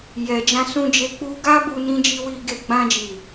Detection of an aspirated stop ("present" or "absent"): absent